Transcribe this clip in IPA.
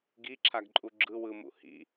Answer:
ɡ i ǁʰ a ɡ ǃʼ u ɡ͡ǁ ɯ w ɯ m ṵ h ḭ

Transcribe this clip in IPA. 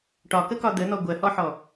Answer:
ʈ ɒ k ə k ɒ d̪ ə n̪ ɔ ɡʷ ɜ h ɔ ħ ɔ

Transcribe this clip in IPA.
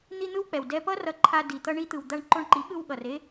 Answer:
n̪ i˦ n̪ ɯ˦ w k͡p ɛ˨ w d ɛ˦ p ʌ˦ r ʌ˧ ǃʰ a˧ d i˨ t̪ ʌ˧ ɳ i˧ t̪ ɯ˨ w d̪ a˧ ɳ ǃ o˧ ɳ ǃ i˨˦ ɠ ɯ˧ w ɠ ʌ˨ r e˦

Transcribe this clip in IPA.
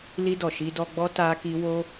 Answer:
l i˧ d ɔ˨ ʃ i˧ d ɔ˧ ɡ͡b ɔ˦ t a˦ k i˦ w o˦

